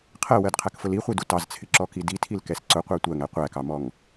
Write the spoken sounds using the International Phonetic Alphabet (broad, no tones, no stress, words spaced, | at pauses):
qʰɜwɜdqʰækfʊl iχʷidu tɑzt͡sʰɪǁɔki ditʰilkɛs ǀʊqʷæ tʷɜŋæ qʷækɑmɔŋ